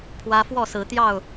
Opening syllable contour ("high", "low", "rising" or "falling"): high